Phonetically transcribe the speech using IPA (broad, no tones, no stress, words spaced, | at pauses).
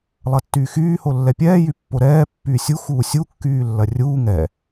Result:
lˠɐtːyːxyː holːɛpʲɛː jypːoɾɛː pːyːsʲu xuːsʲu kːyːlːɐrʲuː ŋɛ